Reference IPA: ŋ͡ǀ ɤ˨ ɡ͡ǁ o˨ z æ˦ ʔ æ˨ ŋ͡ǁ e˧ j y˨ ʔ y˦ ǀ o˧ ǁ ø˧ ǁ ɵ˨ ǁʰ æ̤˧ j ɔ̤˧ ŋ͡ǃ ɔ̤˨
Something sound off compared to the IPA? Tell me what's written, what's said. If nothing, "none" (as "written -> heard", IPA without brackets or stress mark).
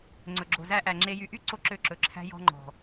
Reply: ɤ˨ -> ɵ˨